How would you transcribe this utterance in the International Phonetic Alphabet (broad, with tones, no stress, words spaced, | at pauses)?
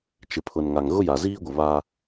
t͡ʃɪ˨pʰʊ˨nŋa˨ŋ ɣʊ˦ja˨ziː˦ɡʷɪ˨ βa˦